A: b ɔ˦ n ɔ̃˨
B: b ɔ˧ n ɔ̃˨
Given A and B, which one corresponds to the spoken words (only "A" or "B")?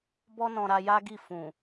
B